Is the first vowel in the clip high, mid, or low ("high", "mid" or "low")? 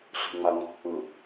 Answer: high